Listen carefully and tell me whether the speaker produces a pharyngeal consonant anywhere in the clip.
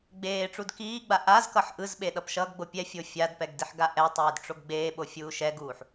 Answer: yes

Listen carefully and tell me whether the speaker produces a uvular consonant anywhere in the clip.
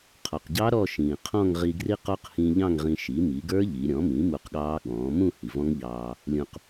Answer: yes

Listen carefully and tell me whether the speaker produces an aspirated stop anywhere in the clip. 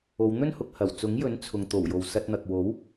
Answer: yes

